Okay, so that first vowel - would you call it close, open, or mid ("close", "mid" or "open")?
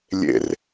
mid